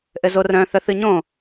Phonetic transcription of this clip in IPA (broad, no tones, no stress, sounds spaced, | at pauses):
ʔ ɘ z o r œ̃ θ œ θ ɨ ɲ õ